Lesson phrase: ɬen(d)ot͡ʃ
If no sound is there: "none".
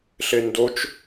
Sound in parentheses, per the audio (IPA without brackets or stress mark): d